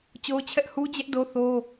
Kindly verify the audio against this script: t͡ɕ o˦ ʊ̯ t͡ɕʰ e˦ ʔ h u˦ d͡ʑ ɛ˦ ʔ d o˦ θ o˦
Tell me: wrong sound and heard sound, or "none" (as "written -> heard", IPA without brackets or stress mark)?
e˦ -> ɛ˦